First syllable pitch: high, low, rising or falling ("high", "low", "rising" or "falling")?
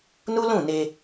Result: high